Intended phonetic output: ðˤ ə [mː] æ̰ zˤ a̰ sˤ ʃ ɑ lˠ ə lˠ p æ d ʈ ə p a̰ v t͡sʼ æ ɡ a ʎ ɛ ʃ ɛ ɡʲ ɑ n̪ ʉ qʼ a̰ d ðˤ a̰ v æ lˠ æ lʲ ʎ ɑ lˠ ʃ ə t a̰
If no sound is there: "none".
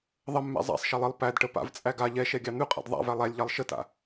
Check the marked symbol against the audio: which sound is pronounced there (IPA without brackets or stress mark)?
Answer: mː